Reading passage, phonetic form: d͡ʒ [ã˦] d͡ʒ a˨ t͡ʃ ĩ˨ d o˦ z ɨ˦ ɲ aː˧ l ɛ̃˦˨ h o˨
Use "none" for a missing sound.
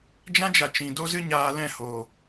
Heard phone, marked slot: ã˦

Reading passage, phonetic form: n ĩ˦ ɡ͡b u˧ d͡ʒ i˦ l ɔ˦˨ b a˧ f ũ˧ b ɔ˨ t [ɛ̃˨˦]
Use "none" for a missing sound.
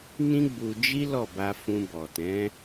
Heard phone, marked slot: ɛ̃˨˦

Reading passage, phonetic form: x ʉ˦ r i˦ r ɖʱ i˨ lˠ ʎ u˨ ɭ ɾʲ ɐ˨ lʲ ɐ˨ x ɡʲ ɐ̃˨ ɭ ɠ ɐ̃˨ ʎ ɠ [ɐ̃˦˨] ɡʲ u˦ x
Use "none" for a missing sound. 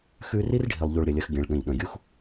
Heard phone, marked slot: ɐ̃˨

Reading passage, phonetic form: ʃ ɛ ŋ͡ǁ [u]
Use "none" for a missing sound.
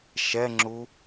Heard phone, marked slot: u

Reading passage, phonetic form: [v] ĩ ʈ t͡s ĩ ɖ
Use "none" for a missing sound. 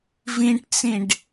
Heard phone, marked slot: v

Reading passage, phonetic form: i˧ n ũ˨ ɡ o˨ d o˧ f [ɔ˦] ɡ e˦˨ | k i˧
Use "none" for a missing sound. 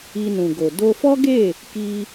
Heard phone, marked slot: ɔ˦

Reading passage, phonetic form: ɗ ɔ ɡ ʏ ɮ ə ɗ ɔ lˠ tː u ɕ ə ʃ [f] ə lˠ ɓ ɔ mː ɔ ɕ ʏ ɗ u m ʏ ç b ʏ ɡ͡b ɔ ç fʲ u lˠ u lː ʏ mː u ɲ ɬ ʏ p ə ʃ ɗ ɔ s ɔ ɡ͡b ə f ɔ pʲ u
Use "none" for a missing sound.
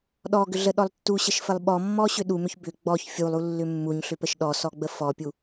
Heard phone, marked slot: f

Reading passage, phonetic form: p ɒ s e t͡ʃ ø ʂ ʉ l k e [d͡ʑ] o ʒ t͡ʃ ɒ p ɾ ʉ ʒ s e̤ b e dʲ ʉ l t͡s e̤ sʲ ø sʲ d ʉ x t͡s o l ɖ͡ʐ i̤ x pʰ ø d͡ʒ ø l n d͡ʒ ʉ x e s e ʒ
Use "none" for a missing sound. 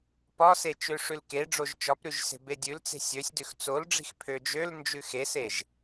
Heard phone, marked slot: ɖ͡ʐ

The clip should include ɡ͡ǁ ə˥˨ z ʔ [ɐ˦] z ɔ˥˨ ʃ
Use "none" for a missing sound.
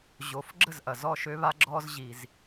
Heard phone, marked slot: ɐ˩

